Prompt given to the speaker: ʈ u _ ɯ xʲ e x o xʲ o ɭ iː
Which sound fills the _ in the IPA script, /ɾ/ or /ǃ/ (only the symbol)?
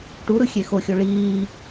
ɾ